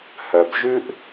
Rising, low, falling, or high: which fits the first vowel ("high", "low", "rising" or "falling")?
low